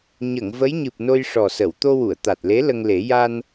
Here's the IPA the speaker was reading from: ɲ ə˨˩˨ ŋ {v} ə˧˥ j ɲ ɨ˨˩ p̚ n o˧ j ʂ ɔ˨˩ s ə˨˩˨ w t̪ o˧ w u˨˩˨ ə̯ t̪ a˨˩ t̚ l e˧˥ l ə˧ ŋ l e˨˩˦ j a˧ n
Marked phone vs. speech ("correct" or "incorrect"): correct